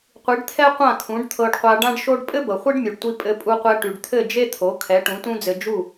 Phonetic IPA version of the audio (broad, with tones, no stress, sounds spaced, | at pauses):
qʷ i˩˥ ɖ t̪ʰ ɛ˥ qʷ ã˥˩ kʰ ũ˩˥ ɖ t̪ʰ ɤ˧ ɖ qʷ a˧ ɖ ã˥ ɖ ʃ o˥ ɖ pʼ ɘ˥ b ɤ˩ χʷ i˥ ɖ mʲ u˩ ɖ tʷ i˧ pʼ ɘ˧ pʼ u˧ qʷ ɛ˧ ʈ y˩ ɖ t̪ʰ ɘ˥˩ d͡ʒ e˥ t̪ʰ o˩˥ kʰ ɛ˩˥ ʈ ũ˩˥ t ũ˥ d͡z ɘ˧ d͡ʒ u˥˩